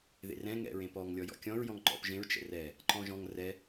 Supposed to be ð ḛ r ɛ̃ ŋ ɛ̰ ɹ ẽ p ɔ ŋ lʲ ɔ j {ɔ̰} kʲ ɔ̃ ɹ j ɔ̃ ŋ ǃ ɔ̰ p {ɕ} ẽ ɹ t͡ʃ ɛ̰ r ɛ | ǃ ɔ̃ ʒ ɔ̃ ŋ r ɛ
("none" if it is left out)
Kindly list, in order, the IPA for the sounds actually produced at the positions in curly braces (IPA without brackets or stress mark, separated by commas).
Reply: ɔ̰, ʒ